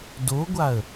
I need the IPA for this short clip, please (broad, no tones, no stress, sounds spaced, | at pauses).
d o ɡʷ a ə̯